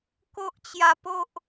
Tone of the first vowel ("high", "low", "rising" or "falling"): high